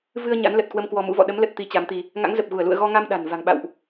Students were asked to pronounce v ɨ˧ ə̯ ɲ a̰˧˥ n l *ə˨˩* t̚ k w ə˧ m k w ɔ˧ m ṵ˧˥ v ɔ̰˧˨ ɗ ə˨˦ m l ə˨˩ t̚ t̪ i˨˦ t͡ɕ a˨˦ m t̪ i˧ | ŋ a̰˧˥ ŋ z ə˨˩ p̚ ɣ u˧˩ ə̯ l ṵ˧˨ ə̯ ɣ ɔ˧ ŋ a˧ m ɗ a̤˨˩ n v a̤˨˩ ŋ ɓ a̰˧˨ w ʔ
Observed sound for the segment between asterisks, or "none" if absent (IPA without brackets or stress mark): ə˨˩